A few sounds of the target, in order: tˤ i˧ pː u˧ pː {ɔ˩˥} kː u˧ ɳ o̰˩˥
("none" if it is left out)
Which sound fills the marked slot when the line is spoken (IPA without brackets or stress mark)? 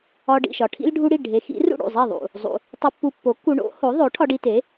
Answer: o˩˥